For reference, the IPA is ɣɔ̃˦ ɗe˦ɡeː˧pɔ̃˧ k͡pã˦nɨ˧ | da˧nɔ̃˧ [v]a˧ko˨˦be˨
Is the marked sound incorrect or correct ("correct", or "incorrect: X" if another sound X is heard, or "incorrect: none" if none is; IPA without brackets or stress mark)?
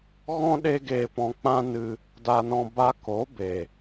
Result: incorrect: b